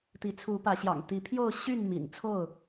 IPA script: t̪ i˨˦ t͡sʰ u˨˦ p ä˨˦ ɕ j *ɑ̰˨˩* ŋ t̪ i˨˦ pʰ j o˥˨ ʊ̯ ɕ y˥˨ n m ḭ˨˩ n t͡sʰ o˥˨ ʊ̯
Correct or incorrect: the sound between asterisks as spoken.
correct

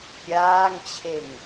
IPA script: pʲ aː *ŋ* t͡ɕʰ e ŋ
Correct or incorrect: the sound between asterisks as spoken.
correct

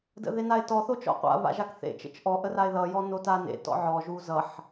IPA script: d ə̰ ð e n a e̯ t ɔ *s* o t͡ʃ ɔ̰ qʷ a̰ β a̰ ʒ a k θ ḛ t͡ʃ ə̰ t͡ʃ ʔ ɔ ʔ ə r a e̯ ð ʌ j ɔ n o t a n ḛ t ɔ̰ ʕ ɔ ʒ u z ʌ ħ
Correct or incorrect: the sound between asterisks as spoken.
incorrect: θ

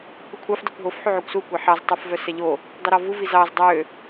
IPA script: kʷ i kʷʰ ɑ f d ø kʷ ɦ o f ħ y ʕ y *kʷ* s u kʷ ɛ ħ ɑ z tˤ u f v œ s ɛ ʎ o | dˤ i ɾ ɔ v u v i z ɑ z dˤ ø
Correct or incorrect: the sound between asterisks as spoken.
correct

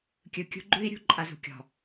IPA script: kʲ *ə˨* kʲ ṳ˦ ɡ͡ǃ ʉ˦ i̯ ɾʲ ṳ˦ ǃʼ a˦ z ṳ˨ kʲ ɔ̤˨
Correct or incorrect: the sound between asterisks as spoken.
incorrect: ɯ˨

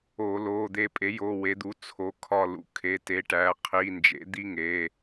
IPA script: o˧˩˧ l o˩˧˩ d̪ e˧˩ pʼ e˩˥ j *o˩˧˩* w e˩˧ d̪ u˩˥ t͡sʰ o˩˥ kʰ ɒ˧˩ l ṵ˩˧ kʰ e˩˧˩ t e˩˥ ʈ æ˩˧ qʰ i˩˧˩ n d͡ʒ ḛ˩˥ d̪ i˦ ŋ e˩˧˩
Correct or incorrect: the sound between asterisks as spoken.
correct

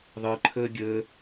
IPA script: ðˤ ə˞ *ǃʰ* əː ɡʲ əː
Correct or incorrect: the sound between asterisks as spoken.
correct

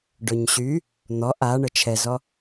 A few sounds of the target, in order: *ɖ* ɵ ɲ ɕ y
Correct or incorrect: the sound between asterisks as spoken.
correct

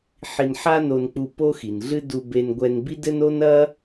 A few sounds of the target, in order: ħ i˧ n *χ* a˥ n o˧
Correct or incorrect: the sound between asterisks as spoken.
incorrect: ħ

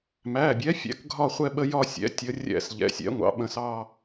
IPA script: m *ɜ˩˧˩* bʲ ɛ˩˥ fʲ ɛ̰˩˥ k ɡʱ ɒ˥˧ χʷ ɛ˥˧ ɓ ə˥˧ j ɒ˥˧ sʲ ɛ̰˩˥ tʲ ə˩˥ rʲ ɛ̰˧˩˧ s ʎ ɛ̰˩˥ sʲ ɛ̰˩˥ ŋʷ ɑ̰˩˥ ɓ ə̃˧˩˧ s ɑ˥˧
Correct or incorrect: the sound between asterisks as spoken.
incorrect: æ˩˧˩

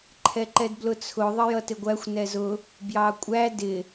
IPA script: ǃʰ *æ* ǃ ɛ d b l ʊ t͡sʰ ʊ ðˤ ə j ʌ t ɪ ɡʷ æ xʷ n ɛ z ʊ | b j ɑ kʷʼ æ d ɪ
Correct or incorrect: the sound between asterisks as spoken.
incorrect: ɛ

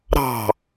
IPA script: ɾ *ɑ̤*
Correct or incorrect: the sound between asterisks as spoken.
correct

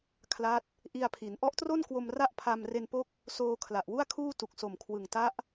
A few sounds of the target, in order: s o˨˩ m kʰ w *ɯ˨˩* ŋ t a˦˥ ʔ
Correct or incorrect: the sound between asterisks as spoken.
correct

